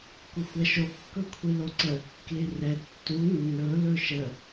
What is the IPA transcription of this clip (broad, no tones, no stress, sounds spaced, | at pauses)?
kʷ ə xʷ ɛ ʃ o kː ɵ kʷʰ i l o ǀ ə | k l i r ɛ tː u nː ɵ l ɵ ʃ ə